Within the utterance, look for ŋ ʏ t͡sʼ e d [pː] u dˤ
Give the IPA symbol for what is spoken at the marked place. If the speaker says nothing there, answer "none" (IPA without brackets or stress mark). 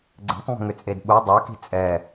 ɓ